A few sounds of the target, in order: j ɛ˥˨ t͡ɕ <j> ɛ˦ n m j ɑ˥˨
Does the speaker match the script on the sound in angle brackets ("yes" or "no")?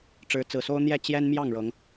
yes